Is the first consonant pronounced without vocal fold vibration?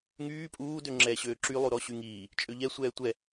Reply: no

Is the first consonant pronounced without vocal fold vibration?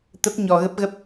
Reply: yes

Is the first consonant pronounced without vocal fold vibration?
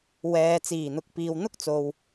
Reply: no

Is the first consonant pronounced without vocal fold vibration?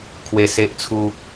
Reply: yes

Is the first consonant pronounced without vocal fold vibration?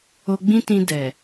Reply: no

